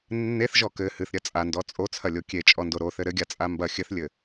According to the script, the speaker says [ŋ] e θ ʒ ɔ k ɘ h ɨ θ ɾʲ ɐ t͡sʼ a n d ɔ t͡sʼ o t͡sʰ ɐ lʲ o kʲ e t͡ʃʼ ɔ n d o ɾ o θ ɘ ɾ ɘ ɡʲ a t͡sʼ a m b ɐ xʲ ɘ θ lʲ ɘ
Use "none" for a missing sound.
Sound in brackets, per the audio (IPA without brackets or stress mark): nː